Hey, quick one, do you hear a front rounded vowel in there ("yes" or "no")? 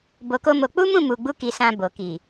no